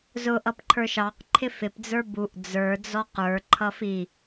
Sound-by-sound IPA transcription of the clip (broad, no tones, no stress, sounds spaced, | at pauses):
z ʊ ʔ ʌ p ǃʰ ə˞ ʃ ɑ q ǃʰ ɪ f ɪ p d͡z ə˞ b u ʔ d͡z ə˞ d͡z ɔ q ə˞ ǃʰ ʌ f i